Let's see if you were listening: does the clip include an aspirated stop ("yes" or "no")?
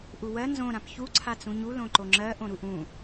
yes